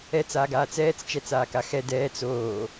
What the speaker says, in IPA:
ɛt͡saːɡ aːt͡sɛːt͡s t͡ʃɛt͡saːkaxɛ dɛːt͡s oː

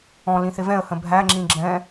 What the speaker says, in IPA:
ɔ̃lĩ θɪvɛ̃ə̯hə̃ bʱæŋ͡ǁĩ ɡ͡ǁɛ̃

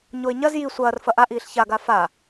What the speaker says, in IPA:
ɲoɪ̯ɲɐz ji sʷɐːr fɐʔaʔiːɬ çaɡa fa

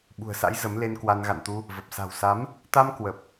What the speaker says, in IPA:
ɓṳ˨˩ə̯sa̰˧˥j zə˨˦mle˧nkwa˧n ɣa̰˧˨nt̪u˧ | və˨˩p̚sa̤˨˩wsa˨˦m | t̪a˧m kwə˨˩p̚

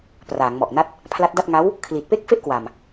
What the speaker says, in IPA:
praː˩˦ŋmɔ˨˩ʔna˥˩t̚ | pʰla˦˥t̚da˥˩t̚ ŋa˦˥w | kʰli˨˩t̚pe˥˩k̚ fe˥˩ʔkwa˨˩m

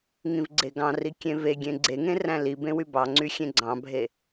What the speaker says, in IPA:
ŋĩvɡ͡ǀeɡɑ̃ri kʲẽveɡʲẽ ɡ͡ǀeŋẽ ræ̃libẽ wybɑŋ͡ǀy xʲẽɡ͡ǀɑ̃bʱe

